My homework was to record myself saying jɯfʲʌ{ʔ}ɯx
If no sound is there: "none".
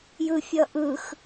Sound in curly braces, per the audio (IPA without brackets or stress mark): ʔ